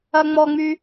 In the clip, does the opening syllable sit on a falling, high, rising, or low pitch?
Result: low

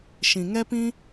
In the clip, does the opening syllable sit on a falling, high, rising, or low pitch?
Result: low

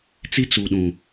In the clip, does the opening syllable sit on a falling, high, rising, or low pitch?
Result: high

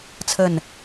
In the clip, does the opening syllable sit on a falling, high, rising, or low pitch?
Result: falling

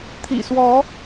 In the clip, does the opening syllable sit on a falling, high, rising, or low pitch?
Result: low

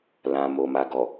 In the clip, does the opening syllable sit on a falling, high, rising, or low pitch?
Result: low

